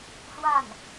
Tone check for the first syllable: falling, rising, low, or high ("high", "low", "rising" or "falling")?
falling